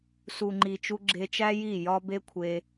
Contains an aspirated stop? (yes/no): yes